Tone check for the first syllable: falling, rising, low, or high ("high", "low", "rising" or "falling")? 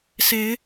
rising